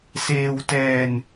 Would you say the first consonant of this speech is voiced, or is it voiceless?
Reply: voiceless